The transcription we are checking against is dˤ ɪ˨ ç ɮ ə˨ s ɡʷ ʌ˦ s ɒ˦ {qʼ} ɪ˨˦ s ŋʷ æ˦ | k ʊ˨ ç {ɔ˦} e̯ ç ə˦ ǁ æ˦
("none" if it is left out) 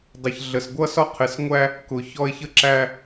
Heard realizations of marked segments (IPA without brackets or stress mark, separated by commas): qʰ, ɔ˦